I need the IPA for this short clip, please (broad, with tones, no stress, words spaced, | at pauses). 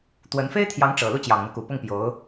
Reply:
t̪wə˧˥n fe˥ɪ̯t̪ʰjɑ˧˥ŋ ʈ͡ʂɤ˨˩lu˥˩ t͡ɕjɑ˨˩ŋn̪ɤ˦ ku˨˩pʊ˥˩ŋpjo˧˥ʊ̯